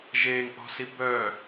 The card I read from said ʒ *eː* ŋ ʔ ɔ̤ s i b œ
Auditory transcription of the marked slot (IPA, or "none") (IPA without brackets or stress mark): e